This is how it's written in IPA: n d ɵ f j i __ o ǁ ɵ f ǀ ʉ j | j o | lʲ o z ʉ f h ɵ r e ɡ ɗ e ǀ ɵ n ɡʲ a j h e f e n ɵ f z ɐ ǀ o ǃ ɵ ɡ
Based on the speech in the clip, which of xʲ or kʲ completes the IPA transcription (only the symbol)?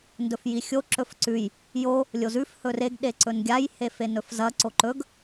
xʲ